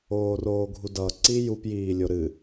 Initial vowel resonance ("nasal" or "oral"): oral